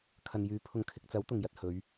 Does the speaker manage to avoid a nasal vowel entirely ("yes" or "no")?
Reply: yes